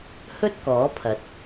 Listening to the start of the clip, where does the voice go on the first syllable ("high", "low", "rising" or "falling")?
high